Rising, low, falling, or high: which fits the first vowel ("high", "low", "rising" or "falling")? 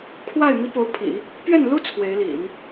falling